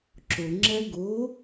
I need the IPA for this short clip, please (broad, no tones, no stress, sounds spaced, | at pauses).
ǁ ʊ ŋ͡ǁ ɛ ɡ ʊ